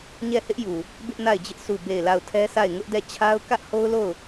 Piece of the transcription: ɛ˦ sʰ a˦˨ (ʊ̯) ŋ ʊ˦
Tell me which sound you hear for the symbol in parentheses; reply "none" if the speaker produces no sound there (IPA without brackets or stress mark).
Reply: ɪ̯